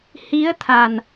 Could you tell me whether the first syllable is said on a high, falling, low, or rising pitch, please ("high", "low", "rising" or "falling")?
rising